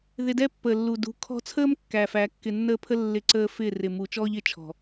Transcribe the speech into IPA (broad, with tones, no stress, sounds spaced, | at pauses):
ð ɪ˧ d ɛ˦ pː əː˨ lː u˨ d ṳ˨ kʰ ɔ̤˧ t͡sʰ əː˦ m kː æː˨ f æ˨˦ kː ɪ˧ nː əː˦ pʰ ə˦ lː ɪ˦˨ ǀ əː˦ f ɪː˦˨ r ɪ˨ m u˨ t͡ʃ ɔː˦ ʎ ɪ˨˦ t͡ʃʰ ɔ̤˨